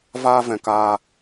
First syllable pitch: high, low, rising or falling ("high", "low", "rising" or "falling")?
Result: high